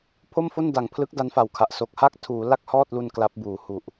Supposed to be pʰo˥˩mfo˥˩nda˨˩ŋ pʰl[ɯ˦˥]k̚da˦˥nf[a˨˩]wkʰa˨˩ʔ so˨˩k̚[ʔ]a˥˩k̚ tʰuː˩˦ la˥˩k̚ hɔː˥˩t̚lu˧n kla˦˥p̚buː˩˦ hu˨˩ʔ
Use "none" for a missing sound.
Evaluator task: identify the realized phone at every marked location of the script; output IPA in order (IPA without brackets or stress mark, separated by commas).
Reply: ɯ˦˥, a˨˩, h